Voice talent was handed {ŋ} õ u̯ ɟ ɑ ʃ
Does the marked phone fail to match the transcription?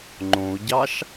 yes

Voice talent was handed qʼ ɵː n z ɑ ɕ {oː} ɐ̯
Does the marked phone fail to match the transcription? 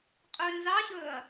yes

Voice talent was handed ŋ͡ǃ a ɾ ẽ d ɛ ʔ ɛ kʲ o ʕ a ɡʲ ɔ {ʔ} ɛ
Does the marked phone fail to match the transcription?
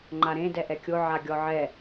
yes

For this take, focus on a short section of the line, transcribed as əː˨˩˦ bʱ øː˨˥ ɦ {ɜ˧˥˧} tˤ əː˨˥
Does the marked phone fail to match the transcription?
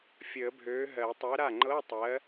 yes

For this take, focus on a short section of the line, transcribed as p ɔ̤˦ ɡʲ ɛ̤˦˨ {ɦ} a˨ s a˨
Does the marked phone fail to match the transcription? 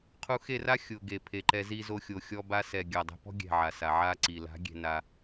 yes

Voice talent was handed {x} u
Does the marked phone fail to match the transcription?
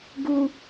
yes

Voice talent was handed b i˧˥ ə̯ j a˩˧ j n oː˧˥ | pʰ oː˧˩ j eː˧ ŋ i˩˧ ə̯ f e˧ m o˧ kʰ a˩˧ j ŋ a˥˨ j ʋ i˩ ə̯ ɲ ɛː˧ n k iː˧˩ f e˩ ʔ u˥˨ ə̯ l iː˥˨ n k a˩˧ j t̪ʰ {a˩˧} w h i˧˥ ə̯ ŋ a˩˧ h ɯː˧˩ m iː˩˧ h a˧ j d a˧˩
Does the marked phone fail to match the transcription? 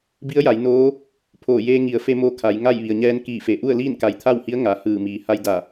yes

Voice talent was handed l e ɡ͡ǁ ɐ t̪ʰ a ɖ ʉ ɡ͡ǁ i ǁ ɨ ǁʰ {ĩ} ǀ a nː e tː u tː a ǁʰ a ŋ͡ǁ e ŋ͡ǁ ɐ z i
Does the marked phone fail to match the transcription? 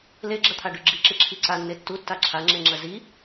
yes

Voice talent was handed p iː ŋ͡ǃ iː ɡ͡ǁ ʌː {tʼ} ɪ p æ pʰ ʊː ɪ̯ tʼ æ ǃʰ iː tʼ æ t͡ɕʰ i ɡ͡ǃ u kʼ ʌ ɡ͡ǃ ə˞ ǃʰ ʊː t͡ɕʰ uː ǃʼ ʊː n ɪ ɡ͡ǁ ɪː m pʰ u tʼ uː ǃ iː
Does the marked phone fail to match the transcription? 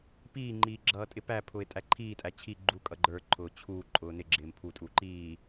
no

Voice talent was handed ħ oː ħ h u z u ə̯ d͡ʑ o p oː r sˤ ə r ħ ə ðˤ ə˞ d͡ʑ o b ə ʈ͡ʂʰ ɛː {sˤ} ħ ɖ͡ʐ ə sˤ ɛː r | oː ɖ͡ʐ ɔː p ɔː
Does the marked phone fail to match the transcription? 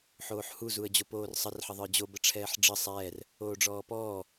yes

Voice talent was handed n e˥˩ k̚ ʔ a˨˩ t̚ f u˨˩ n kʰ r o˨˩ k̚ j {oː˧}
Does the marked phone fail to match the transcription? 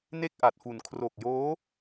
yes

